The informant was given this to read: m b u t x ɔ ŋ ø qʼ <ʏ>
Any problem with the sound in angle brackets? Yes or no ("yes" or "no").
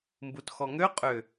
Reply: no